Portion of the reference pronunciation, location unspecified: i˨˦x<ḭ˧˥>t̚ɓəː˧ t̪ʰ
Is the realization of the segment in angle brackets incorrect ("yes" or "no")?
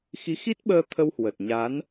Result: yes